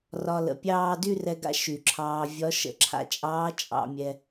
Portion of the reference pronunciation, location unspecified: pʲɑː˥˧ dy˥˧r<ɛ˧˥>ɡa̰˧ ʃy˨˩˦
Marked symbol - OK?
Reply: no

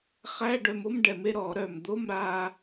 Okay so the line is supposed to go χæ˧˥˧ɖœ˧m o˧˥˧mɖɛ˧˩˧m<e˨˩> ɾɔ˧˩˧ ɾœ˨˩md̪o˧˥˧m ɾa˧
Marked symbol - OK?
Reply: no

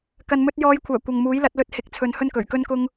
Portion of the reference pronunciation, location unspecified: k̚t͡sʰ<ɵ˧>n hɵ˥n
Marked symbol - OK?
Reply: no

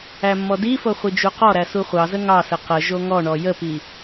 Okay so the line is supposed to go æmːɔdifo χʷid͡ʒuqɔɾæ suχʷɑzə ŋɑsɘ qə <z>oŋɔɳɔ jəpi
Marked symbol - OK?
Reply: no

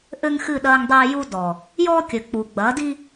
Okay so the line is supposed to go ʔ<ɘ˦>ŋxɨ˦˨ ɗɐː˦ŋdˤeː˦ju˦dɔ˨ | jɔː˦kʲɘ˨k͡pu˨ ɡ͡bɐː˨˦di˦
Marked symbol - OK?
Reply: yes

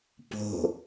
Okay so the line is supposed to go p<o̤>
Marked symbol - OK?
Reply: yes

